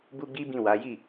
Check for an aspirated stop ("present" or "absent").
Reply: absent